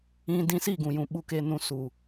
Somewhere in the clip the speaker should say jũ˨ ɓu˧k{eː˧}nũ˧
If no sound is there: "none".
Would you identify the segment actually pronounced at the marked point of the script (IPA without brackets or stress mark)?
eː˧